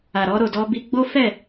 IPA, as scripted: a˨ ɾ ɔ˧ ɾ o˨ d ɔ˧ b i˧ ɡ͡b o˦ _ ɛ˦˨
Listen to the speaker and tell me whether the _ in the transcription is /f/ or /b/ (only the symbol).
f